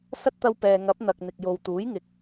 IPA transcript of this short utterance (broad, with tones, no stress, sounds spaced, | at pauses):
s ɐ˥ t̚ t̪ ɐ˧ w p ɛː˨ ŋ ɐ˨˥ p̚ n̪ ɐ˨ k̚ n̪ ɪ˨ k̚ j o˨ w t̪ uː˨˥ j ŋ ɪ˨˥ k̚